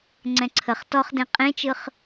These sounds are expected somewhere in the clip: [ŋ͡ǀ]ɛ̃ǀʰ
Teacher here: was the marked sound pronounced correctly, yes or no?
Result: yes